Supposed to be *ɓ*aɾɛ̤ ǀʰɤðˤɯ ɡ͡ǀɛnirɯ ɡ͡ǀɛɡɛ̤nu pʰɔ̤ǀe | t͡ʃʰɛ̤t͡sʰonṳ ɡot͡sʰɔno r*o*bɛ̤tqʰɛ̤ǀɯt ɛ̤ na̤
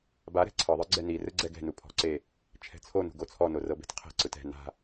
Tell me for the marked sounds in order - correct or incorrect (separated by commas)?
incorrect, incorrect